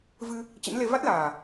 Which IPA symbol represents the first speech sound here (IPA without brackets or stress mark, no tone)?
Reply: v